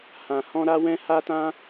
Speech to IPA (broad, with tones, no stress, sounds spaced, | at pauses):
h ã˧ h ɔ̃˦ ɾ a˦ w ɛ̃˦ h a˦ t ã˦